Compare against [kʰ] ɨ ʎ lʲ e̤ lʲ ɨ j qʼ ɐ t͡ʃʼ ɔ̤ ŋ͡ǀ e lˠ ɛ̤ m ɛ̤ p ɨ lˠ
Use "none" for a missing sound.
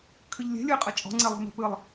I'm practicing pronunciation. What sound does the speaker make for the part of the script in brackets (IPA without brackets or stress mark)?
kʰ